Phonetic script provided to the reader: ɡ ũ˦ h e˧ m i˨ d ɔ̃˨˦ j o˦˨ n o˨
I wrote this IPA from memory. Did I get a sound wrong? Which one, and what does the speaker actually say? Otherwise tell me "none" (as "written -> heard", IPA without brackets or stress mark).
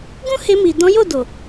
n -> d